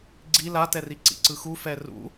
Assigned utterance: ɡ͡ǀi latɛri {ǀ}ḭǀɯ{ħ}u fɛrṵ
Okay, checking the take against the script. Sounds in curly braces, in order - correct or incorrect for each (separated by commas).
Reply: correct, incorrect